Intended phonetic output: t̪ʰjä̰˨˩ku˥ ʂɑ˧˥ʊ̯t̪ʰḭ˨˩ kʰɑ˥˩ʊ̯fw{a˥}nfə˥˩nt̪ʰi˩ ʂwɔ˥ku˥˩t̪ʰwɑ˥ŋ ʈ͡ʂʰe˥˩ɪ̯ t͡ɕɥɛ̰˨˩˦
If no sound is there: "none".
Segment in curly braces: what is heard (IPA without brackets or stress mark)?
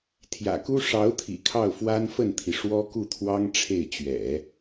a˥